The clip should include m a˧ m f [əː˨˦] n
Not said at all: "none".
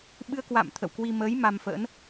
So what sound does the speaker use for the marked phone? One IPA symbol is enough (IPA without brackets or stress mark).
ə̰ː˧˥